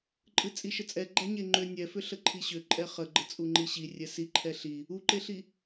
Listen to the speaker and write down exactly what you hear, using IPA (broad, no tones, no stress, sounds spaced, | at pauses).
ǃʼ ɨ t͡sʼ i ʃ ə t͡sʼ ɛ ɡ͡ǃ æ ɲ e ŋ͡ǃ ʏ nʲ ɛ f ʏ ɬ ə ǃʰ i ɕ ʏ ǃʼ ɛ χ ə ɡ͡ǃ ə t͡sʼ u ŋ͡ǃ i ɕ i rʲ ɛ s i ǃʰ ɛ ɬ i | u ǃ e ɬ i